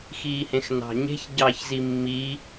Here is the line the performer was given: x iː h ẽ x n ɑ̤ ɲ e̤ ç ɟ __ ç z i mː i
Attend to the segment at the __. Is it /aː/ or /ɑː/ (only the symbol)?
ɑː